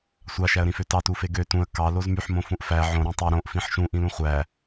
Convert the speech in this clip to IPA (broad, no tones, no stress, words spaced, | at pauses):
sʷɑʃæə̯ɾĩfø tɑtufe ɡø tũə̯ kɑ lozmyħmõ fũʔfæ ʕõ ɾũtˤu ɾõʔfĩħ ʃũ ʔĩlũχʷæ